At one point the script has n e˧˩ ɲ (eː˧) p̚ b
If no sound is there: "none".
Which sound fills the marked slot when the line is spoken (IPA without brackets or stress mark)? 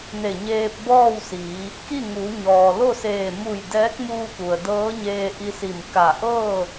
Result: eː˧